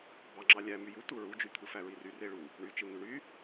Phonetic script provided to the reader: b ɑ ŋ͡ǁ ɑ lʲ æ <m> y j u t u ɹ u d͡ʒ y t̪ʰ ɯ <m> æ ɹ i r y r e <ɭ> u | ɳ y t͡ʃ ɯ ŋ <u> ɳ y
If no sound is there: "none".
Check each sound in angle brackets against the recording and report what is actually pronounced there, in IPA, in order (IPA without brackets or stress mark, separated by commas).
m, f, ɭ, y